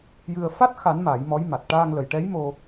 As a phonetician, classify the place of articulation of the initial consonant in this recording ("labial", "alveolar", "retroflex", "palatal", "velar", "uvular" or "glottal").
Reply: palatal